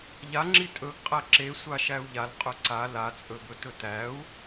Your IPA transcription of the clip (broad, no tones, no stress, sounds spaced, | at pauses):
ʎ a ŋ͡ǁ i tʼ ɵ ɡ qʼ æ ǁ e sʷ a ʃ æ u̯ ʎ a l qʼ ɵ ǀ a l a t͡sʼ ɵ b ɵ t ɵ t æ u̯